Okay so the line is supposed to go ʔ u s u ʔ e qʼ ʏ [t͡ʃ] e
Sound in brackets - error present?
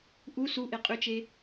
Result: no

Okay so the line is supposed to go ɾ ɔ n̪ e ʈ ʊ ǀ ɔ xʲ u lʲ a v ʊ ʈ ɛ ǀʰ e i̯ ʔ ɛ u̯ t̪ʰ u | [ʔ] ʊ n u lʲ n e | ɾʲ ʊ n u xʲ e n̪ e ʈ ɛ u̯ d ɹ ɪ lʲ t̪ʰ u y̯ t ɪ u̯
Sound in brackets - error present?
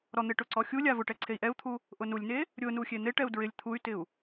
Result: no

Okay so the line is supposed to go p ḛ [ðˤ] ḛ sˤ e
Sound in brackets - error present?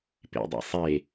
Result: yes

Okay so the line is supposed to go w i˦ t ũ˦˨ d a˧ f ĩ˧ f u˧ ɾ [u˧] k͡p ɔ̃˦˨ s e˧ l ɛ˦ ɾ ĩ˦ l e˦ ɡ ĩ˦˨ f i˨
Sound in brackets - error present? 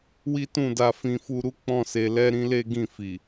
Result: yes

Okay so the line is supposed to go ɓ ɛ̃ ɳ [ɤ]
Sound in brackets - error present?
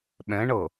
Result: no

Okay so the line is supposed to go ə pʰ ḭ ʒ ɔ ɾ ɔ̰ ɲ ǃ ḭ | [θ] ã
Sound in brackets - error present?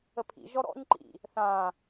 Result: no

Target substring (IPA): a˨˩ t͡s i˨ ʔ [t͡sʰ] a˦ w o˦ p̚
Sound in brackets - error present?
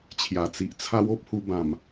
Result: no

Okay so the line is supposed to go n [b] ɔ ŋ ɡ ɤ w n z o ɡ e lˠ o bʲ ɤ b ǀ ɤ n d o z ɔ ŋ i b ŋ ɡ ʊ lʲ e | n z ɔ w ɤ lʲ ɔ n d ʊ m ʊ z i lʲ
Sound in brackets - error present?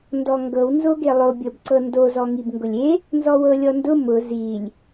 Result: yes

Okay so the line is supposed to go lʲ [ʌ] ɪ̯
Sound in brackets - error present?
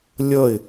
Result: no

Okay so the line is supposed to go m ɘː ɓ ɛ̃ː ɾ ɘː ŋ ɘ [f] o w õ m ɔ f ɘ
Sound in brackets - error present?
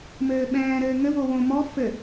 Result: yes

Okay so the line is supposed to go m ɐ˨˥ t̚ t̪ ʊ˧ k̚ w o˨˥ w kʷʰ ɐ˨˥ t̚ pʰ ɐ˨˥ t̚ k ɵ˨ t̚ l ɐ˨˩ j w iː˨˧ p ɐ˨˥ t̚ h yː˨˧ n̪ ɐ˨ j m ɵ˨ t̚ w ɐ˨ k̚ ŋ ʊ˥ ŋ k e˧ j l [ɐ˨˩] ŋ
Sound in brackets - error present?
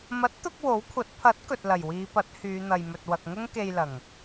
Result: no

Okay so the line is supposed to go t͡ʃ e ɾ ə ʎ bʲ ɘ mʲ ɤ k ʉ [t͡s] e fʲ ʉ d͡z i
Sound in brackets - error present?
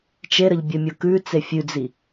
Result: no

